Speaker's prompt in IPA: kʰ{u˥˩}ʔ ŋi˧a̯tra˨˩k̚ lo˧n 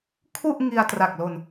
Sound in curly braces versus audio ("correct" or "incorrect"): correct